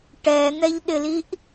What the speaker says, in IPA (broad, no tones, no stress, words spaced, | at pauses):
ʈɛn̪ɛʎɗɪliʔ